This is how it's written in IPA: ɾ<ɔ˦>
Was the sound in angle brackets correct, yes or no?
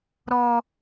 yes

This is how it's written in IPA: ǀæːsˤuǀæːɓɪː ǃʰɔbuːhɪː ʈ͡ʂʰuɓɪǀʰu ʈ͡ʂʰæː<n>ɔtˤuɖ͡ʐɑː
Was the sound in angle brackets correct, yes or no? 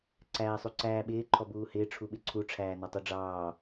yes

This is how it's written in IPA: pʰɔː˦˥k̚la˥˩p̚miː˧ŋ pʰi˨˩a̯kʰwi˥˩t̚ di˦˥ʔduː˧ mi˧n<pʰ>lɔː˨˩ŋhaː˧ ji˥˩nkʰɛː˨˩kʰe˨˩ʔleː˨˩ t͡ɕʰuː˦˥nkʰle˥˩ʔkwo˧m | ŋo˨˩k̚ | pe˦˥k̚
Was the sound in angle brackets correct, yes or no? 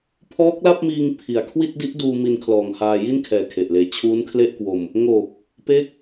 no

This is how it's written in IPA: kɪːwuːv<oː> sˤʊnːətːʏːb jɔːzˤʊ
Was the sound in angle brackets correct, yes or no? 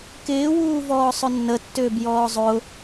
no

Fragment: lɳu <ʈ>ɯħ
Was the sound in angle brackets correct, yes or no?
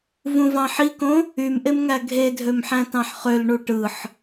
yes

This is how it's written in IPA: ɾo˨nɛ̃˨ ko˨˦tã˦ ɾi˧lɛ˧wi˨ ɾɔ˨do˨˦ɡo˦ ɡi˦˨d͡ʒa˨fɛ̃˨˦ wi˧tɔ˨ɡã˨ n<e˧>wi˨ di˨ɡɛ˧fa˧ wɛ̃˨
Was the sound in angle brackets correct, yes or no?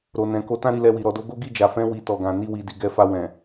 no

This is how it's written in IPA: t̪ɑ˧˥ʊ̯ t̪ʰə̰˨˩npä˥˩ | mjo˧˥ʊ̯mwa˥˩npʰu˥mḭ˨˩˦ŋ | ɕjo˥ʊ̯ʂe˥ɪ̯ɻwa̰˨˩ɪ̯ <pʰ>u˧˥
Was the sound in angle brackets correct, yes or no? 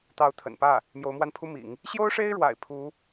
yes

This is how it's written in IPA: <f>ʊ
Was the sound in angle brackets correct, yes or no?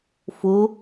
yes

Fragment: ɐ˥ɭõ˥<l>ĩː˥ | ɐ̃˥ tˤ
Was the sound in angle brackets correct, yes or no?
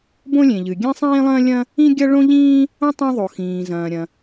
no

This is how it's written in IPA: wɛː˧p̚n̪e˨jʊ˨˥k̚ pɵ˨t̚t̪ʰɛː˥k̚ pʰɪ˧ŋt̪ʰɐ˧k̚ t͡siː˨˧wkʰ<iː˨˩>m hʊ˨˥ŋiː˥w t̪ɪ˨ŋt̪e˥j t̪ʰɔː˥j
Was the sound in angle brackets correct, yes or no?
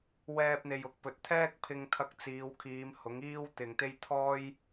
no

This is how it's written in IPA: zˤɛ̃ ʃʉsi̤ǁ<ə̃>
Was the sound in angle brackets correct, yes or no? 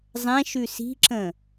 yes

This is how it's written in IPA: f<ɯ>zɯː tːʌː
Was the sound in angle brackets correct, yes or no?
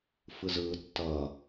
yes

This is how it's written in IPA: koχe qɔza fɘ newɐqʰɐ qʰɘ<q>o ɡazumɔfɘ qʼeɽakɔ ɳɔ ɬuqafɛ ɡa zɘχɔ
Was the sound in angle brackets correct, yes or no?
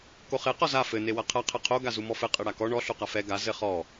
no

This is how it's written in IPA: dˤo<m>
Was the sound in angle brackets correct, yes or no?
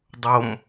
yes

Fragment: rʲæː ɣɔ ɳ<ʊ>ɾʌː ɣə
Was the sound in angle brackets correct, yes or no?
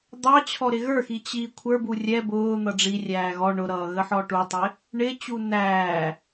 yes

